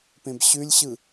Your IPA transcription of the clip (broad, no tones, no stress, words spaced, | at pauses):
pẽbɕʉlʲɕɯ